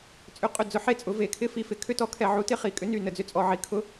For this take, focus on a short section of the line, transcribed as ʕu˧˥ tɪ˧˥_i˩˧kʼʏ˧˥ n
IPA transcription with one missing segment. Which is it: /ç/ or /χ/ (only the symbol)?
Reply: χ